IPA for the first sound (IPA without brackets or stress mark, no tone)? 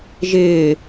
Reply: ʒ